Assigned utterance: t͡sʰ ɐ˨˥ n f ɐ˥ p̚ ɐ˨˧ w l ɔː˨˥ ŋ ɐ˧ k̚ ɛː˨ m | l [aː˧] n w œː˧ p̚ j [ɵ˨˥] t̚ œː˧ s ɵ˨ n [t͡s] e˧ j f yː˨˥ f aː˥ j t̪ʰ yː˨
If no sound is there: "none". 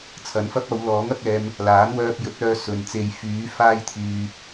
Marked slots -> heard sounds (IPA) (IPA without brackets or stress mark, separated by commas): aː˨˥, ɵ˨˥, t͡s